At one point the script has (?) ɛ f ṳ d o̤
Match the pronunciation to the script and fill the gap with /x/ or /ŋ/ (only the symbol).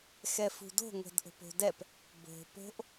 x